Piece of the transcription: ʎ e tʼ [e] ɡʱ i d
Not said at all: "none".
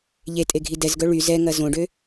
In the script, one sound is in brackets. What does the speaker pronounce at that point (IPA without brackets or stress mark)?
e